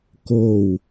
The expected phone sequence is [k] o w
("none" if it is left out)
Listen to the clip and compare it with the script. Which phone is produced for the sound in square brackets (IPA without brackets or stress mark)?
k